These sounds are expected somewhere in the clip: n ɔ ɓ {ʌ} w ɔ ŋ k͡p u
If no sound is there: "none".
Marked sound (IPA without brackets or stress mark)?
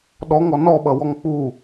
ʌ